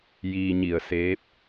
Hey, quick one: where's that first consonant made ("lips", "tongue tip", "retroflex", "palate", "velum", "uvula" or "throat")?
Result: palate